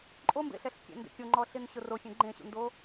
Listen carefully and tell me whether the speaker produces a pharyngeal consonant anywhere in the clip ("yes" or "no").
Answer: no